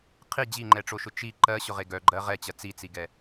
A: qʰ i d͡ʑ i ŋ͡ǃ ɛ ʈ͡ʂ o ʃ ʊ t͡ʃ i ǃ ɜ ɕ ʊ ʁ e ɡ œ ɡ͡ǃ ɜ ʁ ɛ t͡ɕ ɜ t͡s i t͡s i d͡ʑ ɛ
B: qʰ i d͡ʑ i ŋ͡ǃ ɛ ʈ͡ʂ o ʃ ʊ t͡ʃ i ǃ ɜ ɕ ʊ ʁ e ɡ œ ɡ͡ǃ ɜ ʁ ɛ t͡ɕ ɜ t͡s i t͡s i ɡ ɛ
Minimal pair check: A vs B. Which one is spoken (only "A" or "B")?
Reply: B